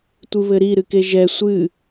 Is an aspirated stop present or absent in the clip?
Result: absent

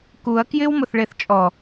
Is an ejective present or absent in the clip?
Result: present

